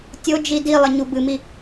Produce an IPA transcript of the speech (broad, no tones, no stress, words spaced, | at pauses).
tʲod͡ʒi di lˠɘɲubɨmi